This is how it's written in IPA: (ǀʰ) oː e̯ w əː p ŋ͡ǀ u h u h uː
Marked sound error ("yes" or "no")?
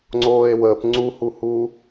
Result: yes